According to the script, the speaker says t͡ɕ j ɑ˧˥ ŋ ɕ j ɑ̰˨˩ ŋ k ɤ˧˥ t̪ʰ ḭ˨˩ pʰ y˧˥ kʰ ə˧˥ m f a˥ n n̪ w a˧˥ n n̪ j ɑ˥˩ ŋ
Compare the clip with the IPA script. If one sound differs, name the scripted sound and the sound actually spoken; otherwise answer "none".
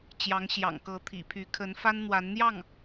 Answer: m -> n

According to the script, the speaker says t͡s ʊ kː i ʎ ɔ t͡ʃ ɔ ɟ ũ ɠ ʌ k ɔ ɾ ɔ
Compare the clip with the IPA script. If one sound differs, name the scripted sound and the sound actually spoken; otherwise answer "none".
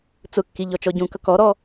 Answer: ɠ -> k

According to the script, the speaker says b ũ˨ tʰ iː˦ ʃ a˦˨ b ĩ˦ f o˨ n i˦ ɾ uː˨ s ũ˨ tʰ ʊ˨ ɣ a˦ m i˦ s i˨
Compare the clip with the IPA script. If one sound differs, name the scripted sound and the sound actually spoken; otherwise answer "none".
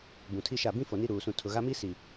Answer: iː˦ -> i˦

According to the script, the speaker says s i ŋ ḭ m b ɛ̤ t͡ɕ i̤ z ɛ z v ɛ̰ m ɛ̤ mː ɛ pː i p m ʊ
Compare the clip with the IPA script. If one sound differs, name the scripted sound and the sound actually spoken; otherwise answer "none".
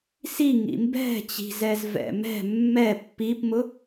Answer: none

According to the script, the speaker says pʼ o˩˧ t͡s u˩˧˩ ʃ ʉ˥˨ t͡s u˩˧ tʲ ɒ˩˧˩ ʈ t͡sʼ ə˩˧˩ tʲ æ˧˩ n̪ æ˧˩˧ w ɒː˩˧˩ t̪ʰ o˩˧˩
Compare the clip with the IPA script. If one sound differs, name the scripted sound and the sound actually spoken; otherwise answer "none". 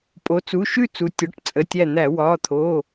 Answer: none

